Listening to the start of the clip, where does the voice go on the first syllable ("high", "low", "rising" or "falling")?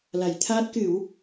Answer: low